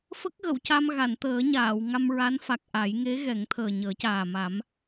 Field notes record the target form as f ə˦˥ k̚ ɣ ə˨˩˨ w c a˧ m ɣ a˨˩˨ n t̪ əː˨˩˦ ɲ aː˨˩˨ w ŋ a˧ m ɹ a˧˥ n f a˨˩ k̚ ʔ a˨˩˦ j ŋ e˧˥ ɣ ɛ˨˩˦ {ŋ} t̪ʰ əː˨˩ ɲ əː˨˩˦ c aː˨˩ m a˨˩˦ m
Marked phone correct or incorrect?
correct